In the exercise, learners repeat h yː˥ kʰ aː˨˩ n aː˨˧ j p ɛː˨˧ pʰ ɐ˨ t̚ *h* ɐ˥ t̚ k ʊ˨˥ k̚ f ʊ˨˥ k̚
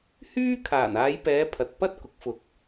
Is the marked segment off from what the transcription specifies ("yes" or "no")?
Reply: yes